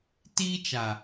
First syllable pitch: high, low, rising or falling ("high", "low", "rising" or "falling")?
high